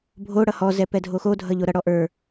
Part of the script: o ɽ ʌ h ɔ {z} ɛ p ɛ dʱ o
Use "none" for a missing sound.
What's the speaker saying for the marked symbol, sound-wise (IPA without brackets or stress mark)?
z